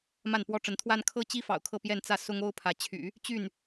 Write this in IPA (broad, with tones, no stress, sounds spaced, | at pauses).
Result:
m a˥˩ n p w ɔ˥ ʈ͡ʂ ə˧˥ n t̪ʰ w a˥ n kʰ ɤ˥ t͡ɕ i˥ f ɑ̰˨˩ ʊ̯ kʰ ɤ˥˧ p j ɛ˥˧ n t͡s ä˥˩ s ʊ˥ ŋ o˥ ʊ̯ pʰ ä˧˥ t͡ɕʰ y̰˨˩˦ | t͡ɕ y˥˩ n